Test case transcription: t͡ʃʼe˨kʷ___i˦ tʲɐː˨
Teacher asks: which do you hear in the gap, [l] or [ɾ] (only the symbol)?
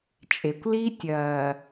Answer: l